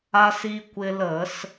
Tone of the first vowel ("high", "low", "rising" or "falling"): high